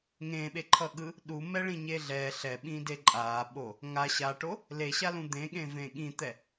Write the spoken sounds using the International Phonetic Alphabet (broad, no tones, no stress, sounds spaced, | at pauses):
ŋ ẽ ɓ e ǃʰ ʌ ɠ ɯ | ɗ u m ɛ ɭ ĩ ɲ e ɮ ɛ ɬ ɛ ɓ ĩ d e ǃʼ a ɓ o | ŋ a ɕ a ʈ o | l e ɕ a l ũ d̪ ẽ ɠ ẽ v ẽ ɠ ĩ t̪ ɛ